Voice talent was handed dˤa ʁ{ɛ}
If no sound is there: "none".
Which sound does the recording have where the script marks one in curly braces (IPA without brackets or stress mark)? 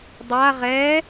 ɛ